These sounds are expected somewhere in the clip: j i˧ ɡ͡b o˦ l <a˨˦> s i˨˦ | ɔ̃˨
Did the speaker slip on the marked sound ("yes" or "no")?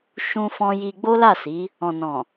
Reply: yes